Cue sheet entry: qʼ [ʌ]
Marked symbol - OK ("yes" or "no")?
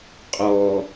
no